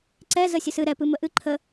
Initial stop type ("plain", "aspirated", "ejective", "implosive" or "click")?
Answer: click